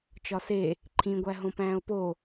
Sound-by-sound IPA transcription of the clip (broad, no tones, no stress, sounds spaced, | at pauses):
t͡ʃ ɒ s e | ǃʰ ĩ ɡʷ æ ɦ õ p æ̃ː o̯ p o